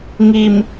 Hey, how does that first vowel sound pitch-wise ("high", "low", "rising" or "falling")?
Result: low